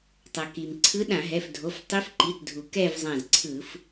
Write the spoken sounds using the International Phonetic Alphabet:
tˤʌ˩ki˩m ǀʰɯ˧˥ɗã˧˩˧ɦɛ˩˧˩fdʱo˩˧˩f tˤi˧˥fǃi˩˧˩tdʱu˩ kɛ˥˧vzˤã˧˩zǀʰɯ˧˩˧f

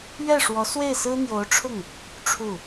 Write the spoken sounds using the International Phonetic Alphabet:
ɥɛ˥˩ʂwɔ˧˥ swe˥˩ɪ̯sɹ̩˥n̪jo˧˥ʊ̯ʈ͡ʂʰʊ˥˩ŋ | ʈ͡ʂʰu˥˩

